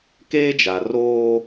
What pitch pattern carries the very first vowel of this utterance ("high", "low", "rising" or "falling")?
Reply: high